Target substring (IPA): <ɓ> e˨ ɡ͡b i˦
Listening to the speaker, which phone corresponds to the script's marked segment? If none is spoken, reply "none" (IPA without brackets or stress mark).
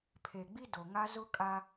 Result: pʰ